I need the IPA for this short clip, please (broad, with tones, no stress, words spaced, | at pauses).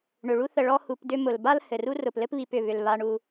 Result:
ɳʏ˩ɭu˥θə˨ ɭɔ˦ hu˨p dʏ˦ mʊ˩lba˥l hɘ˩ru˥ rʊ˩plɘ˥pβi˨pʏ˩ βʏ˩l βa˨ɳu˨